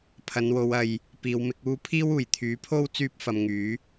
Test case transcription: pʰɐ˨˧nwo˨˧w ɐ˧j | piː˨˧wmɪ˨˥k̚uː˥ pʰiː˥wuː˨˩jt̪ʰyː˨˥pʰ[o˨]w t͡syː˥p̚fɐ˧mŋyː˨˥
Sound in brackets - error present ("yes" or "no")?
yes